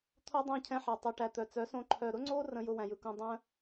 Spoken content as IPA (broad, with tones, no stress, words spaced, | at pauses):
t̪ʰo˦dˤæ̃˦˨cʰɛ̃˧ħæ˨ tˤɛ˨ʈæ˨ t̪œ˨t͡sœ˨˦sõ˧ ǃʰœ˨ɾʊ˦ŋ͡ǀo˦ rə̃˧ jʊ˧ wæ̃˨jɯ˨ kũ˧ dˤœ̃˦